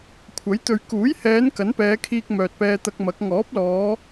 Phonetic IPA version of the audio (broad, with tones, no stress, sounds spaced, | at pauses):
kʷʰ ɐ˨˥ j t̪ ɵ˨ ɥ k uː˨˥ j h ɛː˨˧ n k ɐ˨˥ n p ɛː˨˧ kʰ iː˧ k̚ m œː˨ t̚ p ɛː˧ t̪ ɐ˧ k̚ m ɐ˨˥ k̚ ŋ ɔː˨˥ p̚ l ɔː˨˧